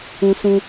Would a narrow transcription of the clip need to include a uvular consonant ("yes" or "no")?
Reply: no